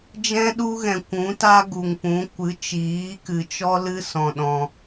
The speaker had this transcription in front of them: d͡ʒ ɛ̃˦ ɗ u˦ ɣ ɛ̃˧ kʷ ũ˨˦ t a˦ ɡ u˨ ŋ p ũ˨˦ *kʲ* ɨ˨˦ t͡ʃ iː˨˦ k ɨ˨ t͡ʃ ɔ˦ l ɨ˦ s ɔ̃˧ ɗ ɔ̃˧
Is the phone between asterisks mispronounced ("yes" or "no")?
yes